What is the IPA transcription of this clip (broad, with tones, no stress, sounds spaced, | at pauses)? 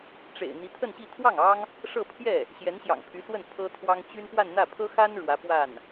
ʈ͡ʂ ḛ˨˩ ɪ̯ n̪ i˧˥ t̪ʰ ə˥˧ n ɕ i˥˧ t̪ʰ w ɑ˥˩ ŋ ɑ˥ ŋ | ʂ ɤ˥˧ pʰ j ɛ˥˩ | ɕ j ɛ˧˥ n ɕ j ɑ̰˨˩ ŋ pʰ y˧˥ s w ə˥˩ n pʰ ɤ˥ t̪ʰ w ɑ˥ ŋ t͡ɕ y˥ n p w a˥˧ n n̪ ä˥˩ pʰ ɤ˥ x a˥ n ɻ w ä˧˥ p w a˥˩ n